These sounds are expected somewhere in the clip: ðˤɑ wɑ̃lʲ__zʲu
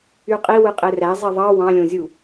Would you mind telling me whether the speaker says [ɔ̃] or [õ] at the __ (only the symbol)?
õ